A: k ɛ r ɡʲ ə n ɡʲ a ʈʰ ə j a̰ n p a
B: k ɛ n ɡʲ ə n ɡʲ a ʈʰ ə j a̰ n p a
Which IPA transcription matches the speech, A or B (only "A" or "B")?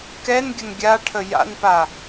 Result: B